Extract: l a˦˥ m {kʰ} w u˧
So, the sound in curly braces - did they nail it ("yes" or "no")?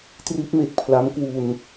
no